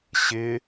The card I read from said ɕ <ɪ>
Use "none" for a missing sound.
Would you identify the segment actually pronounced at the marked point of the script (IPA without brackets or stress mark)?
ɪ